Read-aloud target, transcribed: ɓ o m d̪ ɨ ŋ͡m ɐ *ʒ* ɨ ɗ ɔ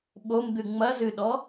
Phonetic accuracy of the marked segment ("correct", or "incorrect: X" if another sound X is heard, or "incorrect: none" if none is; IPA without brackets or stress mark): incorrect: z